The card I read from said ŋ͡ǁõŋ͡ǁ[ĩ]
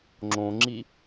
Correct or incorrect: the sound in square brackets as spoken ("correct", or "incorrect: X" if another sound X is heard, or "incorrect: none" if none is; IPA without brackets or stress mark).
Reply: incorrect: i